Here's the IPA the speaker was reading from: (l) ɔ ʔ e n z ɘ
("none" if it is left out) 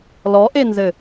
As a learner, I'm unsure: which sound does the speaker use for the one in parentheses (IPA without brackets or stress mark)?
l